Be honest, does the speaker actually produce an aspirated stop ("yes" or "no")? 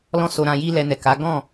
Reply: no